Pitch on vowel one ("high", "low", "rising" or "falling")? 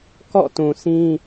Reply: falling